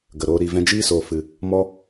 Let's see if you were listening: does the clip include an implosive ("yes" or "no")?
no